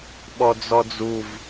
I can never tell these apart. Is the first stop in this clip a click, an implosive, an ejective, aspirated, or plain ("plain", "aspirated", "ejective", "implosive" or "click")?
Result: implosive